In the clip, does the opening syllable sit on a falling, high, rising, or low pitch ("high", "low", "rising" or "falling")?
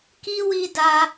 high